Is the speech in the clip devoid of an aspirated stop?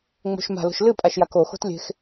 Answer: yes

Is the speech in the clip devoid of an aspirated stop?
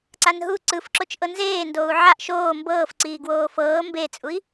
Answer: yes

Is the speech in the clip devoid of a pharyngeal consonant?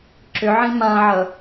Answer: no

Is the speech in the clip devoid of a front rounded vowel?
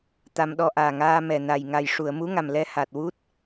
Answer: yes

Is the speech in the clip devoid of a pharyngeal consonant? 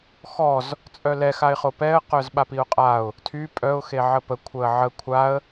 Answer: no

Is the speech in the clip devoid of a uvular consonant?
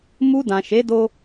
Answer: yes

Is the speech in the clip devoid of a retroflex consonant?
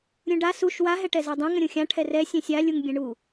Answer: no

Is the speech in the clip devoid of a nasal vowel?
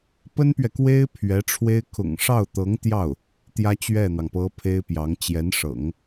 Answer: yes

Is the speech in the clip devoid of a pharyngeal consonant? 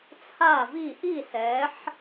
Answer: no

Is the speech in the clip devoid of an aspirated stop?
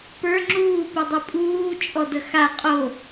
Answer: yes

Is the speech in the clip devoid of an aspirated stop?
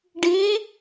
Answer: yes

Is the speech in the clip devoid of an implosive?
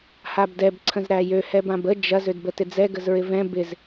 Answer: yes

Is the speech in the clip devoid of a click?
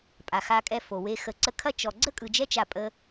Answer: no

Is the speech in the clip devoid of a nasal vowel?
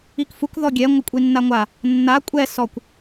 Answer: yes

